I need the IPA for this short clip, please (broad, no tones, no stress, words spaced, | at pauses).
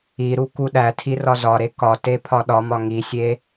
iɾu kuɗætʰi rɒzɒɾe kɒ tepʰɒɗɒmɒ ŋisʲe